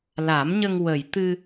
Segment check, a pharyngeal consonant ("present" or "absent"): absent